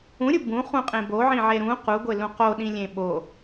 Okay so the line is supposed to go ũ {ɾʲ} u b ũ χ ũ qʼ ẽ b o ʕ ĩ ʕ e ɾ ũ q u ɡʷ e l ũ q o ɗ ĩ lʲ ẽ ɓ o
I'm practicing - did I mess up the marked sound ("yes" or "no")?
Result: no